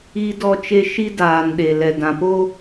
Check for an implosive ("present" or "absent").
present